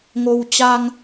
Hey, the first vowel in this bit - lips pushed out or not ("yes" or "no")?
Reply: yes